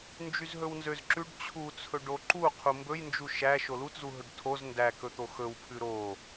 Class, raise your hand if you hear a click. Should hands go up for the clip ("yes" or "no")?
yes